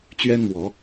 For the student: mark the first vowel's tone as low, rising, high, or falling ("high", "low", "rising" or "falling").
high